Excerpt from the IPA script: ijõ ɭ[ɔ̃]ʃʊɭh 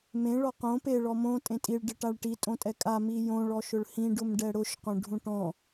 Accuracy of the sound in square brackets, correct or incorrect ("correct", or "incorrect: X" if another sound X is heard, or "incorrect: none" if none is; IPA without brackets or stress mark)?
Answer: incorrect: ɔ